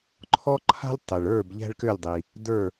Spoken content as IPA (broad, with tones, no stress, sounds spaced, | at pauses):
ǃʰ ɔ˥ ǃʰ a̤˥ lʲ tˤ ɪ˩ ɭ ə˞˥˩ b ʎ æ̤˥ ɭ k ø˥˩ lʲ dˤ i˩ | d ə˞˥˩